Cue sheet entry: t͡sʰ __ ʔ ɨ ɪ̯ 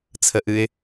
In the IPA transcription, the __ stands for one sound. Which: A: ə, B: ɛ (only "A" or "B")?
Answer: A